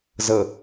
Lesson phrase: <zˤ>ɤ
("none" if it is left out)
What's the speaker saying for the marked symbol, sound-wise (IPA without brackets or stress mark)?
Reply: z